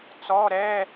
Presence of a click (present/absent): absent